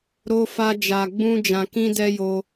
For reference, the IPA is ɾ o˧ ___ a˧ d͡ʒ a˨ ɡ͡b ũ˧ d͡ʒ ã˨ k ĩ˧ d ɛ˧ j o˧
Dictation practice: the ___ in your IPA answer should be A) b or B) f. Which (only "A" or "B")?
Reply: B